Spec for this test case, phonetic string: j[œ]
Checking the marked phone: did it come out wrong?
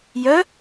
no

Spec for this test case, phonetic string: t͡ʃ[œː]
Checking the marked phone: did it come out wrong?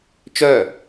no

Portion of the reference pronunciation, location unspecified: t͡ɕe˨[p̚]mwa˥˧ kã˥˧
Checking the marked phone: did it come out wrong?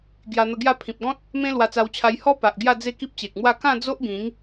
yes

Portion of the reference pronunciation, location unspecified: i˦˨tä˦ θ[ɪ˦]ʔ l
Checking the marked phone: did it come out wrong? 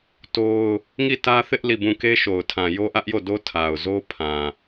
no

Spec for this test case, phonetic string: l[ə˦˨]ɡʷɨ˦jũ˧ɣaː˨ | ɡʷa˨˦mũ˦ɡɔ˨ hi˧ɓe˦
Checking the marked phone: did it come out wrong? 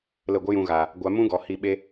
no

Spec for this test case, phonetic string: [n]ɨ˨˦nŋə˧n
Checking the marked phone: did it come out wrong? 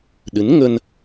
yes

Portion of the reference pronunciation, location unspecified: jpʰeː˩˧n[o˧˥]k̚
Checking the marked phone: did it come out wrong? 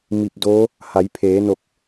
yes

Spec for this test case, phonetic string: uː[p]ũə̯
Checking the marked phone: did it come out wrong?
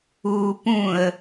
no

